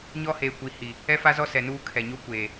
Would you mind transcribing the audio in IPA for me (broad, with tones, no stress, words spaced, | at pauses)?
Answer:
ɲɔ˦heː˨ kʷi˨hi˨ | ɛ˦fa˦zɔ˦ sɛ˨nuː˦ kʰɛ˨ɲo˦kʷeː˨